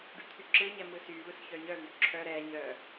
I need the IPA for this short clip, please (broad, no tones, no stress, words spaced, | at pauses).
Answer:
ɖyt̪ʰyǁɯɲɛ mɯsyvɯs çœɲœvy ǁʰœ ɾɛɲœ